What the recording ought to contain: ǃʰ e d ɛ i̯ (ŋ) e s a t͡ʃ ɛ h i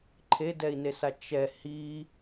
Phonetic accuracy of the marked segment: incorrect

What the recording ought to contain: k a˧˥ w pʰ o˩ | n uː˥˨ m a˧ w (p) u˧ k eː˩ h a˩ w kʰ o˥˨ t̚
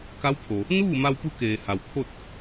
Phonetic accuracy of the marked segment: correct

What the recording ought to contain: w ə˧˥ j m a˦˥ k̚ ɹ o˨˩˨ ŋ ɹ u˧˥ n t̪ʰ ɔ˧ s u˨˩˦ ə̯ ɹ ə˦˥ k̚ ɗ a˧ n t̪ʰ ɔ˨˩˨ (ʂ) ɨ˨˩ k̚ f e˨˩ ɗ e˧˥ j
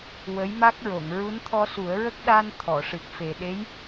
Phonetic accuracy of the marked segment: correct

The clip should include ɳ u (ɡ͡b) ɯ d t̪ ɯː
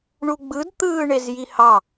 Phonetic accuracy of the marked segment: correct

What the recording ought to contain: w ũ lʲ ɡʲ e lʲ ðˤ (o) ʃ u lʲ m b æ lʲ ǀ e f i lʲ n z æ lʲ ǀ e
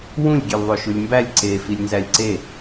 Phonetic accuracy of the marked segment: correct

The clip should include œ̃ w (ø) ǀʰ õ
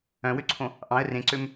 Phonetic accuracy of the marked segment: correct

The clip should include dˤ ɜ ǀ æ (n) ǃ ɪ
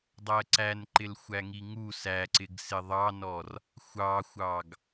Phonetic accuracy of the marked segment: correct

